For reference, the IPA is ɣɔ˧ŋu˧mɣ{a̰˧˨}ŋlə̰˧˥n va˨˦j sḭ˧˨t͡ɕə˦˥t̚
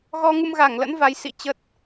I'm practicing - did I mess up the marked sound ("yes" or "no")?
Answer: yes